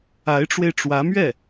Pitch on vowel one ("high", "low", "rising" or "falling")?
rising